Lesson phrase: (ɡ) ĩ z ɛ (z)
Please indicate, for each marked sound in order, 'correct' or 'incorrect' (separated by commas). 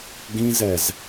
correct, correct